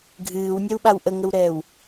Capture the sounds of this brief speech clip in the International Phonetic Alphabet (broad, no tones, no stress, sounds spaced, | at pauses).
ɡʱ ɨː w nʲ ɛ w ɓ a w ʔ ə ŋ ə w ɾ ɛː w